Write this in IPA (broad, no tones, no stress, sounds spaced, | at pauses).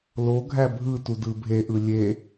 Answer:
l o ɡʱ æ bʱ ɯ t u d ɯ bʱ e ʔ ɯ lʲ e